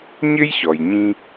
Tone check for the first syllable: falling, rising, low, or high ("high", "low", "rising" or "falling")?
high